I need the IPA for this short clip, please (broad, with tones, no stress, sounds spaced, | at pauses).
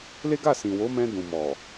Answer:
l e˦ ɡ a˦˨ s ĩ˨ w o˨˦ m ɛ̃˧ d ũ˨ m ɔ˨